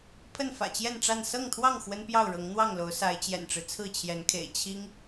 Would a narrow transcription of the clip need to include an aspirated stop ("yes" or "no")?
yes